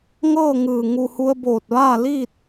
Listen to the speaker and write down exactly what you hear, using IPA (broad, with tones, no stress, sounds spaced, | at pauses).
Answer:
ŋ ɤː˥˨ ŋ ɯː˧˩ ŋ u˧˩ h u˧ ə̯ b oː˧˩ t̚ ʋ aː˥˨ l iː˥˨ t̚